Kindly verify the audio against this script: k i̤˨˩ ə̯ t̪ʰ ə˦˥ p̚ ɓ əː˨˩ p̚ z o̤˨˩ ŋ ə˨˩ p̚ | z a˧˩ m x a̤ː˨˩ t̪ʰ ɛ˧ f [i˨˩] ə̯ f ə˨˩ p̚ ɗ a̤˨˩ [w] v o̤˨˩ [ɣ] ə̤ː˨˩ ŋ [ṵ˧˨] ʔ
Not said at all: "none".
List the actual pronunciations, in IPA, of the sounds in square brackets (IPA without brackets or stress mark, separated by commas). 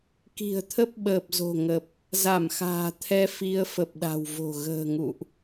i˧, w, ɣ, ṵ˧˨